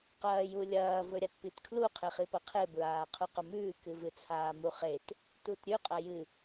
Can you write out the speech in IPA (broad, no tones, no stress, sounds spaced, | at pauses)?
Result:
q ɐː j u lʲ ɐː v ɵ ɾʲ a t p i t kʰ l u qʰ e χ i p ɐ qʰ e b ɹ aː qʰ u q ɵ m ʉː k ɨ v ɨ t͡sʰ aː m u χ e t | t u t ɾʲ ʉ qʼ ɐ j ɨ